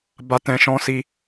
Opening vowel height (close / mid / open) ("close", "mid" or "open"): open